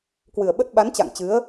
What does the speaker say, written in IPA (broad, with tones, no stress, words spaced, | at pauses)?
kwɨ˨˩ə̯ɓə˦˥t̚ɓa˨˦n t͡ɕa̰˧˨ŋt͡ɕɨ˨˦ə̯